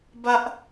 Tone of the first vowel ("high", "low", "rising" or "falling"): high